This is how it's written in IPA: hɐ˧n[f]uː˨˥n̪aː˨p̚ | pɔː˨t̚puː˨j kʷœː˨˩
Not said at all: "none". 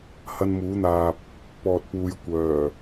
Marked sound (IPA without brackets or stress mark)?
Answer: m